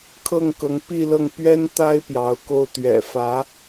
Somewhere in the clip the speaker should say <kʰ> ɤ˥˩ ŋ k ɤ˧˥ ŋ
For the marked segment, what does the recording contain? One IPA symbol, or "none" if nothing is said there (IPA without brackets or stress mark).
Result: kʰ